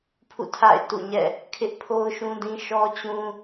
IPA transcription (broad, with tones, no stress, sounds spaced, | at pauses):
pʰ ṵ˦˨ tʰ a̰˦˨ ɪ̯ t ṵ˦˨ ɲ ɛ̰˦˨ | kʰ ɪ˦ ʔ pʰ o˦ ʊ̯ ʃ ũ˦ d ĩ˦ ʃ ɔ˦ t͡ɕ ũ˦